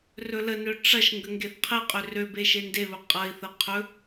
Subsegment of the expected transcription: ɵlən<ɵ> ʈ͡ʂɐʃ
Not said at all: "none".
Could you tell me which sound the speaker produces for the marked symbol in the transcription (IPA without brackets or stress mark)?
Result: ø